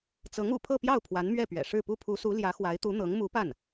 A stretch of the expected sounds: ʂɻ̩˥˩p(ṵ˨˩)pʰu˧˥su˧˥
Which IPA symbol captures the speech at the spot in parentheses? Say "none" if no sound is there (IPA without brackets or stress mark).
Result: u˥